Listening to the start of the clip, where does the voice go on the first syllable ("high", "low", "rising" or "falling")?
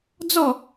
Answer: falling